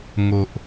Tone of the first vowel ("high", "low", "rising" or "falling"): low